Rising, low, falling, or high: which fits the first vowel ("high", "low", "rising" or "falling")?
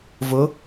rising